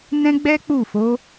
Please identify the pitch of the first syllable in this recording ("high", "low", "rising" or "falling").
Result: high